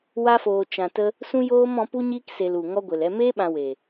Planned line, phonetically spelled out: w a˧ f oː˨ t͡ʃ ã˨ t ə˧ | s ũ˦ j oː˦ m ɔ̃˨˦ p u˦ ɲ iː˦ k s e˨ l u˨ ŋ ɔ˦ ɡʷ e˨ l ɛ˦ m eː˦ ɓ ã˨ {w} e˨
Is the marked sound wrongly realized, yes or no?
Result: no